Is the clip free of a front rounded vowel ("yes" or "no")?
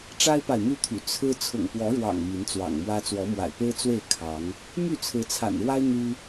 no